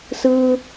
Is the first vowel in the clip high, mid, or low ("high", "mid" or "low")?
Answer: high